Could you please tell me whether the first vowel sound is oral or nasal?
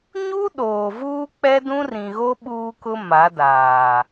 oral